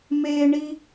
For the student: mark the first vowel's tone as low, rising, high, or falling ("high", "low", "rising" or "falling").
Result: high